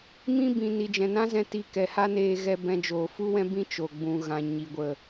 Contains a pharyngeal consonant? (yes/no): no